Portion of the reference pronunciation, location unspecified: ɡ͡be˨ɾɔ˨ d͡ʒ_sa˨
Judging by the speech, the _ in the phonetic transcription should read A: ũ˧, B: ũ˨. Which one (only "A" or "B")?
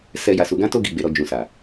B